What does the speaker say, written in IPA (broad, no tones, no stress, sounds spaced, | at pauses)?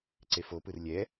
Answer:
ǀ e f o p ɯ r lʲ ɛ